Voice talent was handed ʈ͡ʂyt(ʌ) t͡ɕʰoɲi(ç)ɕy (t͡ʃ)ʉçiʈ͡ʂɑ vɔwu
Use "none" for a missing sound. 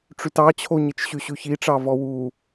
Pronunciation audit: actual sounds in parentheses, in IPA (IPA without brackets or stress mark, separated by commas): ɑ, t͡ʃ, ɕ